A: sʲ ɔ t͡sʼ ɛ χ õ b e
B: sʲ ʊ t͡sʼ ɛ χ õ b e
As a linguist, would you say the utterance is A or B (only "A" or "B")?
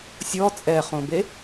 A